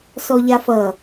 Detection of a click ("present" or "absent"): absent